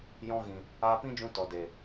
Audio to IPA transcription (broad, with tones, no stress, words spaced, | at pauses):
jɔ̃˧ɣĩ˨ | aː˧pĩ˦d͡ʒũ˧ tɔ˨de˨